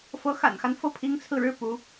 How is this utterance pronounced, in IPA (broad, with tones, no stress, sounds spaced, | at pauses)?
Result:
f ɤ˧˥ x a̰˨˩ n x a˦ n f ɤ˥˩ pʰ i˧˥ ŋ t͡sʰ ɹ̩˧ ɻ ɻ̩˥ p u˧˥